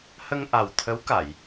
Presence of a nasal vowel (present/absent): absent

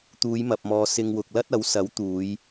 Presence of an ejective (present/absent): absent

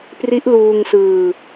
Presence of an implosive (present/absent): absent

